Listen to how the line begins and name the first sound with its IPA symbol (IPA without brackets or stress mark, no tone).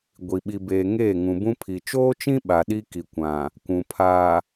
ɡʷ